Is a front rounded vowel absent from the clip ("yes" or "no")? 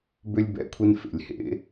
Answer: no